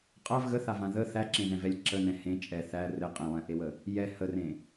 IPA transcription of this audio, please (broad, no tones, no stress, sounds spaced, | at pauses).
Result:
qʼ a v ɣ ə θ a v ã ð ə θ æ ǁ ẽ ð ɛ̃ v ɛ lʲ ǁ ə n ɛ̃ h ẽ t͡ʃʼ ɛ θ æ r ɘ qʼ ɛ̃ lˠ ɛ̃ ʔ e w ə | j ɛ h ə r ẽ